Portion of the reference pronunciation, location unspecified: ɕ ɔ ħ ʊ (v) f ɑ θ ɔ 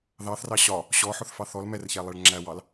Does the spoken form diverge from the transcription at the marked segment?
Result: yes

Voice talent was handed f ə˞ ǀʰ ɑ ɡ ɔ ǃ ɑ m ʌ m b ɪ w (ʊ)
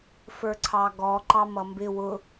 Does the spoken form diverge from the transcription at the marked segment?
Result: no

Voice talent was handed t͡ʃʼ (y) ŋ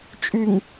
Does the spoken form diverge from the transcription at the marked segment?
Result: no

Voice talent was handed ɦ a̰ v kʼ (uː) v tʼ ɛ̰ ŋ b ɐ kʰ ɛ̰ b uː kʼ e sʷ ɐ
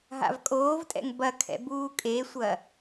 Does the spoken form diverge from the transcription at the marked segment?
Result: yes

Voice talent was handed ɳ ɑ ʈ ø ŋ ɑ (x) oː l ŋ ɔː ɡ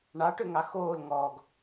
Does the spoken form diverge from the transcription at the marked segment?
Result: no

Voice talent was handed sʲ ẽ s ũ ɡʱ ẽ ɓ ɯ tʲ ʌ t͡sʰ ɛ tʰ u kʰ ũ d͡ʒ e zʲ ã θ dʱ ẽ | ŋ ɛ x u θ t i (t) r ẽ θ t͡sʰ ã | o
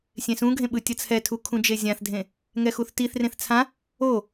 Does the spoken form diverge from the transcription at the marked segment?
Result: yes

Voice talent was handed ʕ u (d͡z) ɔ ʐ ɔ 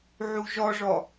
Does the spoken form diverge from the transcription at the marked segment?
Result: yes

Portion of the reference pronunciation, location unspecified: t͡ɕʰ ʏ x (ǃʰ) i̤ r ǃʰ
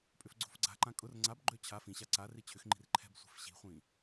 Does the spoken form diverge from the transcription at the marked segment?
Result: yes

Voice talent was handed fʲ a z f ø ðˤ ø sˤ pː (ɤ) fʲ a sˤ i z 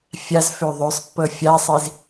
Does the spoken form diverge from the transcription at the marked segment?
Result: no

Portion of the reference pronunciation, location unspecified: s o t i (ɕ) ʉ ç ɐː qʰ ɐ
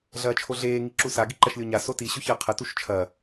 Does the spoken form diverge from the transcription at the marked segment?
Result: no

